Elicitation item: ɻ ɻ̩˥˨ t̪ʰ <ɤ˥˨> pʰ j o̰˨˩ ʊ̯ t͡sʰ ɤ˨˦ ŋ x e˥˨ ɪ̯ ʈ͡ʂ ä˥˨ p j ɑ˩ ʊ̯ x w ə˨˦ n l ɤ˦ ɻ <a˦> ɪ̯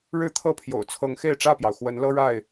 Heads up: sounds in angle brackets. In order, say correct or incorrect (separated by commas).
correct, incorrect